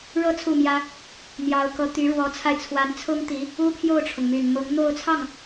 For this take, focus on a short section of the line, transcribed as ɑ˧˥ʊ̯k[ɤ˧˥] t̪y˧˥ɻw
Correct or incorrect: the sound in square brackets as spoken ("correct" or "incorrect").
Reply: correct